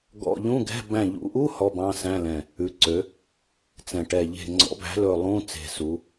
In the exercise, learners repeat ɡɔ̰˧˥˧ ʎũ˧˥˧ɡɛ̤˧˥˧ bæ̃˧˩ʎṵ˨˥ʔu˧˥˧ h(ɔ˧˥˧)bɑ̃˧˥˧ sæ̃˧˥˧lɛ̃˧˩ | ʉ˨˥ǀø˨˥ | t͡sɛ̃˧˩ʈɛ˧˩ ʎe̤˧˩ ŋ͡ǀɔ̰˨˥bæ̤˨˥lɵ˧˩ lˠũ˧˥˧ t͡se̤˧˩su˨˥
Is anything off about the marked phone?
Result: no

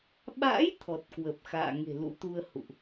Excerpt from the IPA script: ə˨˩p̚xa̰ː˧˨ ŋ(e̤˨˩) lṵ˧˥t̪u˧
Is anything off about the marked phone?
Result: no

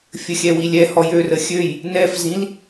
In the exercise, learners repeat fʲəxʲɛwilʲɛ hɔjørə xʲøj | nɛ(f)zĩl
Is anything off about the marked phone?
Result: no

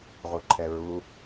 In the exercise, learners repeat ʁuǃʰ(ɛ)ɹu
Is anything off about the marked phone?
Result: no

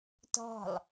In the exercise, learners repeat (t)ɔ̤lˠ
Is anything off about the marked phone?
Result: no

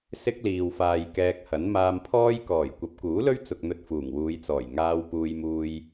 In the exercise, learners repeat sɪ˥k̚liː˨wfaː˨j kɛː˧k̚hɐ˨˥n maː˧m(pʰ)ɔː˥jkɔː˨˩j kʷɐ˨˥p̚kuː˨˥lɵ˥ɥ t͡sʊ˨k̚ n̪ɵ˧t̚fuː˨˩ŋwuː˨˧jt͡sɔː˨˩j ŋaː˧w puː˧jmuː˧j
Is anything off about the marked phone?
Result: no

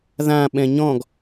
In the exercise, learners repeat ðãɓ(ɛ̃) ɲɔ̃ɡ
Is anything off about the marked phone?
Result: no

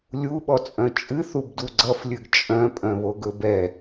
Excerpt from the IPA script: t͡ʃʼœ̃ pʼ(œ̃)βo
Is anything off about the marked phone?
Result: no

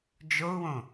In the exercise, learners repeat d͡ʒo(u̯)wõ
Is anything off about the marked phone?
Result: no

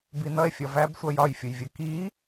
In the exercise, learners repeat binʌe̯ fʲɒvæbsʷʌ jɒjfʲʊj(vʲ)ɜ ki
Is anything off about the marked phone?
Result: no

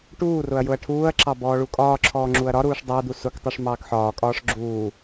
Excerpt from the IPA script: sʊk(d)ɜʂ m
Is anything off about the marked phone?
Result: yes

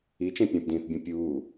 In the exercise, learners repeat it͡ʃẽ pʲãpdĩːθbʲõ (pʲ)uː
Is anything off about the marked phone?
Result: no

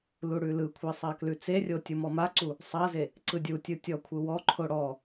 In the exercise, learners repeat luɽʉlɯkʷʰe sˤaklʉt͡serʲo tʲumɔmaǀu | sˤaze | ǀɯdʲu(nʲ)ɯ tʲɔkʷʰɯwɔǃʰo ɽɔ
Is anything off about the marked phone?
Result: yes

